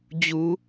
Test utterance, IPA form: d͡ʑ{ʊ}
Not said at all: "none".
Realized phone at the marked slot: u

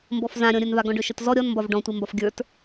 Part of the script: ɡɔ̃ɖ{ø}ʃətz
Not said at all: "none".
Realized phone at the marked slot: ø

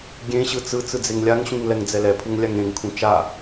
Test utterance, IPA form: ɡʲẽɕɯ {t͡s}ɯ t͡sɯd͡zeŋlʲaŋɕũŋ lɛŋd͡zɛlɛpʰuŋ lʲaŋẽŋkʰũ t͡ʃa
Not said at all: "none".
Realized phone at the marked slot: t͡s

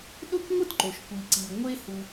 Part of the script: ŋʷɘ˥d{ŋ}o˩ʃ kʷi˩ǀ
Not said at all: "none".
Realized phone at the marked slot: ǃ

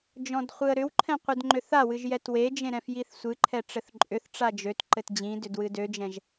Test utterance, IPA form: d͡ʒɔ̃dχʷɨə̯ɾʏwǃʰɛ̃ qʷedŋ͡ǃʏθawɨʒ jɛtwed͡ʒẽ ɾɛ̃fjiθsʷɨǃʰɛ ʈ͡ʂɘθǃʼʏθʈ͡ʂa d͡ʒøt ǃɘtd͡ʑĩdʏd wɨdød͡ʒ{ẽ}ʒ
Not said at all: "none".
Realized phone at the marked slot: ɛ̃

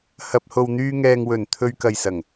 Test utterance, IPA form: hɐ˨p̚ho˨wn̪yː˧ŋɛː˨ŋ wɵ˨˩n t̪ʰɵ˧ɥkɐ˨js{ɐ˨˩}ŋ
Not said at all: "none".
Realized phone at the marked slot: ɐ˨˩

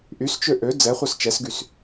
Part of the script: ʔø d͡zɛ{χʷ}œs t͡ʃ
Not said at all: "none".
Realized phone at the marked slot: χʷ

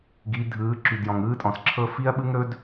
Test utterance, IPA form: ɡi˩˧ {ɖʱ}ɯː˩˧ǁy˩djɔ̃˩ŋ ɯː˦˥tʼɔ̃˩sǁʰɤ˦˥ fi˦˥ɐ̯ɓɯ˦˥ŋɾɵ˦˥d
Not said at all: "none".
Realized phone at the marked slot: dʱ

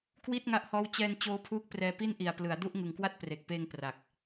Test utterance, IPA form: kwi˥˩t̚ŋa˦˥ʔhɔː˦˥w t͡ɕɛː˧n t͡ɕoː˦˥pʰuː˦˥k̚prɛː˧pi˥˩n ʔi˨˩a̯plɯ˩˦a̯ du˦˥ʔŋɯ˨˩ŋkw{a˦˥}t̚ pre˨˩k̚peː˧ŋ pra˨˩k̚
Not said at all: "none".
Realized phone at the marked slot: a˥˩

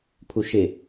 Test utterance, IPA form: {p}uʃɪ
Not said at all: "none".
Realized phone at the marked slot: pʰ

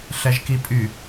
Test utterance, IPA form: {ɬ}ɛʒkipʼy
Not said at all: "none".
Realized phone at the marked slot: ɬ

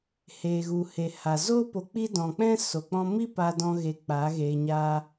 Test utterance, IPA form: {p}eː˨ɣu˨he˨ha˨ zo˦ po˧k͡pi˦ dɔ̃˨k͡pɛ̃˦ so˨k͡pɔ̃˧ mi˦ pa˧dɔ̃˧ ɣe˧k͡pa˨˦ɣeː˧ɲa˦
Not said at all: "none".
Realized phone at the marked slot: h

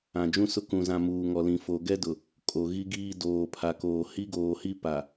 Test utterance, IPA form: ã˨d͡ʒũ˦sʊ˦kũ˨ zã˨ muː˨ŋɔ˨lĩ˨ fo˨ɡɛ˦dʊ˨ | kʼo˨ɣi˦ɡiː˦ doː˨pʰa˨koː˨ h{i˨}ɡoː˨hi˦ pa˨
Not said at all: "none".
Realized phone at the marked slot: i˦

